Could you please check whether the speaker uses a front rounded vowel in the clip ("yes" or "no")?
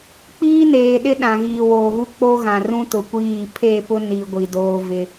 no